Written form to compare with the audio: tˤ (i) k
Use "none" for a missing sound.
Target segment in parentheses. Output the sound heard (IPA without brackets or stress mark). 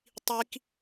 i